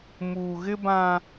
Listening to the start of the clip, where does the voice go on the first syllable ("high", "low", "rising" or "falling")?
low